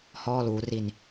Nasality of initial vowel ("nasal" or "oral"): oral